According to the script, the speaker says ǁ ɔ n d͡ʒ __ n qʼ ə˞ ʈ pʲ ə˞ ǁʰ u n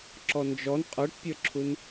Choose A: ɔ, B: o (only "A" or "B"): A